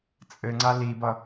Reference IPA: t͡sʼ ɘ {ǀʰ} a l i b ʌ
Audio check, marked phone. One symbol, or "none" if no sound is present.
ŋ͡ǀ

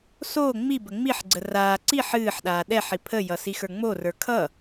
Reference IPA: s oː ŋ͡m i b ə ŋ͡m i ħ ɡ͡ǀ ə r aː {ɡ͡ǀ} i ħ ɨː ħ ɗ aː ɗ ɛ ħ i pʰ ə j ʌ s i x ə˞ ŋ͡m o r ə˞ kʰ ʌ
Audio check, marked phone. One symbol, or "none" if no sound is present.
ǀ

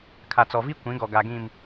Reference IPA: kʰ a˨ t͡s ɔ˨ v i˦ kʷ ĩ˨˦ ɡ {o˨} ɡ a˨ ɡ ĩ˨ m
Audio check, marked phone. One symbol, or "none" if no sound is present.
ɔ˨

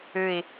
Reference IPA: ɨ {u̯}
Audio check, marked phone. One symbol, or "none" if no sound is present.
i̯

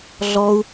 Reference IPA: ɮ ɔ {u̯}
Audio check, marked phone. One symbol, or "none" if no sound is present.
u̯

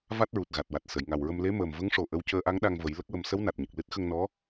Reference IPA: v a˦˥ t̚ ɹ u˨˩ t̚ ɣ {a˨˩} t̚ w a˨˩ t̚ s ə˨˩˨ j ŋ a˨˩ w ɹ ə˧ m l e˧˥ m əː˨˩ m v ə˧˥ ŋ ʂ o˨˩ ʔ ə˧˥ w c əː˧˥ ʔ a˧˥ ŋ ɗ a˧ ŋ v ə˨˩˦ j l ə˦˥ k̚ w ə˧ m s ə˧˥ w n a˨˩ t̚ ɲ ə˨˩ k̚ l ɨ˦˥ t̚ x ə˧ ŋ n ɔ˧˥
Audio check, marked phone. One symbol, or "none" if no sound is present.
a˨˩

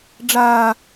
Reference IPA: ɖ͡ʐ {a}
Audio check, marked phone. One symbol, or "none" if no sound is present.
aː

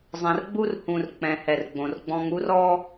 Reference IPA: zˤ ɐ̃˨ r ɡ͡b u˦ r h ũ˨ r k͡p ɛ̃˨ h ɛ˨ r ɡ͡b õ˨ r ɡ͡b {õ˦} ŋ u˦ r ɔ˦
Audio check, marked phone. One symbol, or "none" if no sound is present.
ɔ̃˦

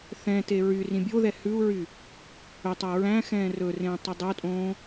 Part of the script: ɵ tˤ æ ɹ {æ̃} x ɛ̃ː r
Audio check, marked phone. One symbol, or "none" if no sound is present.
æ̃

